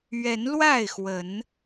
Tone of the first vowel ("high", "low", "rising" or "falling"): rising